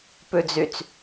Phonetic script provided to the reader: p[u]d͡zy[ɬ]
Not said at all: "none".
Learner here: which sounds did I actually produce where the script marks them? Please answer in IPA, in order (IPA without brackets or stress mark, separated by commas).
ʉ, t͡s